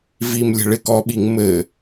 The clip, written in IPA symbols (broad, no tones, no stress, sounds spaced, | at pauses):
v i m lʲ ə̤ ɭ ɪ k ɔ ɓ i ŋ m ɘ